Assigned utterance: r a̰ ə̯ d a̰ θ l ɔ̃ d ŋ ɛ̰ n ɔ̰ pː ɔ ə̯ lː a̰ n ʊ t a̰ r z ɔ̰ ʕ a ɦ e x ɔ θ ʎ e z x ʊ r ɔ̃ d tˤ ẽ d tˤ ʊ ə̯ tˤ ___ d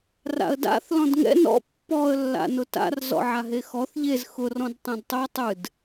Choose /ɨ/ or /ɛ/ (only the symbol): ɨ